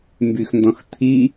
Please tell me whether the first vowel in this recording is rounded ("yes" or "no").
yes